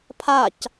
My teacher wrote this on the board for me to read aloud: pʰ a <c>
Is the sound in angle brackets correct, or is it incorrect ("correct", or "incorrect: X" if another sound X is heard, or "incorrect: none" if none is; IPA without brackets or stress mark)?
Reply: correct